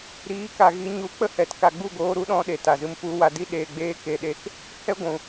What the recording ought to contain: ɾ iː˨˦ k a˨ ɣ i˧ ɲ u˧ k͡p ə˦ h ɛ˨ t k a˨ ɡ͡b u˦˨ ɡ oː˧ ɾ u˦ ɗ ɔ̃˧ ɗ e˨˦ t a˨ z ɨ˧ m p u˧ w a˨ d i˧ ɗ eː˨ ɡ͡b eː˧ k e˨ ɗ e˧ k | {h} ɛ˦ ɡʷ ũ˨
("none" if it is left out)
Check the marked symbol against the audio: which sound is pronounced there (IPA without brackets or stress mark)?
h